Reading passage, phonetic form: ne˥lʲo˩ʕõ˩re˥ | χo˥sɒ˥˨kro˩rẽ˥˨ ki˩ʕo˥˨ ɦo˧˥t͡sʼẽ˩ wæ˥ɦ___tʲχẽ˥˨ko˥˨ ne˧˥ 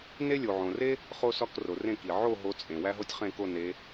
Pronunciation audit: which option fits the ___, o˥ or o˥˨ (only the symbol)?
o˥